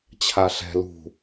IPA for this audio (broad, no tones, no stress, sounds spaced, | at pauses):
t͡ɕʰ a ɬ ɛ̤ l ṳ